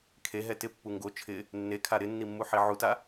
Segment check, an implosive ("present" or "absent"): absent